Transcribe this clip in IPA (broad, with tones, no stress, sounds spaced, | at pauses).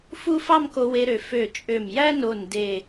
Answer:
f u˥ f ɑ˥˧ m k o˧ w e˧ ɾ ø˩˧ f ø˧˩ t͡ʃʼ ø˧˩ m j æ˥ n o˧˩ n d e˧˩